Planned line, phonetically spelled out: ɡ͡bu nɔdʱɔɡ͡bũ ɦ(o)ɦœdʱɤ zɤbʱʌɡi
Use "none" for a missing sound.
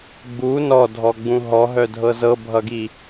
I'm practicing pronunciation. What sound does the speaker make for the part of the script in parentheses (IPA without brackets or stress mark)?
ɔ